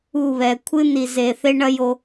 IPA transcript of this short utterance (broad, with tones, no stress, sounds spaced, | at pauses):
u˦˨ β ɛ˨ kʷʰ ɨ˦ n i˨ z e˨ θ e˦ ɳ ɐ˦ j o˦